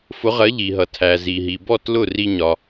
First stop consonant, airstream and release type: aspirated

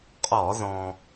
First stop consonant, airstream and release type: ejective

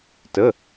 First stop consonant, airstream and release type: plain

